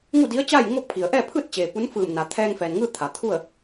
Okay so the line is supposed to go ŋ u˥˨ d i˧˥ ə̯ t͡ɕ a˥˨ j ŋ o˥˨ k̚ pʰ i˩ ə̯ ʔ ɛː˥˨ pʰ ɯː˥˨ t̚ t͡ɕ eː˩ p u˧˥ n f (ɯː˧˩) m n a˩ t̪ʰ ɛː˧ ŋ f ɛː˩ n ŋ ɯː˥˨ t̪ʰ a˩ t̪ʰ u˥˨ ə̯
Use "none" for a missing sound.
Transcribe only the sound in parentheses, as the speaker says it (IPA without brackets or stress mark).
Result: ɯː˧˩